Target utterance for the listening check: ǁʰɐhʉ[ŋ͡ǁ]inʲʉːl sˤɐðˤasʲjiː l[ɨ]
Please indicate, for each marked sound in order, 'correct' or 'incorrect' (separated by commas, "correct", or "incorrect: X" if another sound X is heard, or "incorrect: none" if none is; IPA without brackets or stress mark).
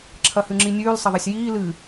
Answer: correct, correct